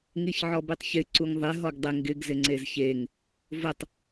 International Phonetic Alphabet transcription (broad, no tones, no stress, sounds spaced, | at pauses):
ŋ i ç ʕ ɔ b i tˤ ç ɪ ǀ u ŋ ðˤ ɪ ɦ ɔ ɡ dˤ ɪ ŋ ɡ ɪ ɡ z ɪ ŋ͡ǀ e z ç e ŋ | v ʊ tˤ